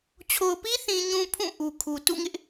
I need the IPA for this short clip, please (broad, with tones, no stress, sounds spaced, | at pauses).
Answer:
t͡ɕʰ o˨ ʊ̯ p i˦ θ ĩ˨ ɲ ũ˨ pʰ ũ˦˨ ʔ u˨ kʰ u˨ t ṵ˦˨ ŋ ɪ˦ ʔ